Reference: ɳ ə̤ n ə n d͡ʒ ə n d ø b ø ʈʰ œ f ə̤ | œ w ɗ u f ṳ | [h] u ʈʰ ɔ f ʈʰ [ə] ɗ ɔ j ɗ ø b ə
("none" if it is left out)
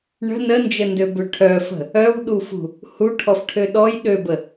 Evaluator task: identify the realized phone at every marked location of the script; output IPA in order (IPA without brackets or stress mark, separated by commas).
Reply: h, ø